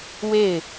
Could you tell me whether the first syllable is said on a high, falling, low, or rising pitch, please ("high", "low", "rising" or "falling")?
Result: falling